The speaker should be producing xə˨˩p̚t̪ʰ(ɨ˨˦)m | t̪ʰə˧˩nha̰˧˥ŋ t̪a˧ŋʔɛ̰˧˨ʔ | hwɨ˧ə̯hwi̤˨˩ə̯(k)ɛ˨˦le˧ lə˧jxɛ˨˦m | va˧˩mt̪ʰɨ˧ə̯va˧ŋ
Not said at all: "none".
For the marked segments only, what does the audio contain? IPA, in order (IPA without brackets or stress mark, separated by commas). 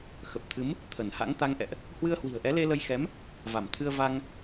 ɨ˨˦, ʔ